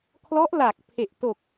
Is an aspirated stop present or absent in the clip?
present